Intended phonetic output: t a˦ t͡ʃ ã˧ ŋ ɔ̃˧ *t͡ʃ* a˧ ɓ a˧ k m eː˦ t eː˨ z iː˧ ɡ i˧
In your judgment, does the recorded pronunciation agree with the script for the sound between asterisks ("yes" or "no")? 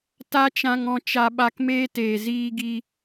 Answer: yes